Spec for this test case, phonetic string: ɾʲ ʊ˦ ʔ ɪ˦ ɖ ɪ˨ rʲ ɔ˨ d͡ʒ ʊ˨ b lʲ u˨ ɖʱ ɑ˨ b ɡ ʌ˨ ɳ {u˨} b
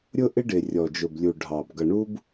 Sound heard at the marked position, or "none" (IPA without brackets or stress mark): u˦